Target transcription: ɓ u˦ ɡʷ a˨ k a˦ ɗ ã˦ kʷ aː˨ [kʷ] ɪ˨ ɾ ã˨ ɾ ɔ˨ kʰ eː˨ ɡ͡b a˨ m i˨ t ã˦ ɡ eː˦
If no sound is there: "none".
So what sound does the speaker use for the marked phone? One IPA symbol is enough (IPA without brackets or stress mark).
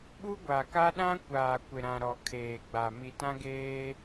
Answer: kʷ